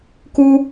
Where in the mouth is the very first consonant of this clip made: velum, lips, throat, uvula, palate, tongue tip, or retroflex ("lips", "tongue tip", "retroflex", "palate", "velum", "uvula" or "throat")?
velum